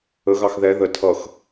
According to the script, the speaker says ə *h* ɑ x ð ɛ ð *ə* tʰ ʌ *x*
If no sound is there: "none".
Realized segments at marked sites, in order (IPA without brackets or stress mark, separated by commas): ɣ, ə, x